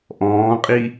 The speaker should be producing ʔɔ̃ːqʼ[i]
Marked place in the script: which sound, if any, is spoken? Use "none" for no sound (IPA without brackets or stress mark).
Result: i